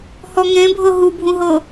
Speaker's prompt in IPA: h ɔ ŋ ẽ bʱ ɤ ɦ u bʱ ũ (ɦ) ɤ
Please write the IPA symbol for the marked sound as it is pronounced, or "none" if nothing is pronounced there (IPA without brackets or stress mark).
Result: ɦ